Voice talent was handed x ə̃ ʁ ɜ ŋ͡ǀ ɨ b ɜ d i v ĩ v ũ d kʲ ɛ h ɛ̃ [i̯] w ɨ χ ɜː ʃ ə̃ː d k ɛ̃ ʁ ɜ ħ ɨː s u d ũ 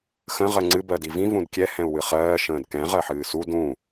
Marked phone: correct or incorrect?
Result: incorrect